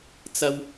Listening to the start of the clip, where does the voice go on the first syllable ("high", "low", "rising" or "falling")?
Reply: high